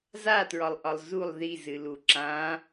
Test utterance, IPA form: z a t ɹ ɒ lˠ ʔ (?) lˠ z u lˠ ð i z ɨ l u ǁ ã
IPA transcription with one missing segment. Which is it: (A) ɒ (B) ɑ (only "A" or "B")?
A